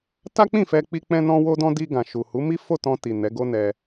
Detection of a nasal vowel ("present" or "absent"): present